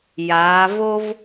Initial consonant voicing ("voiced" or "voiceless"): voiced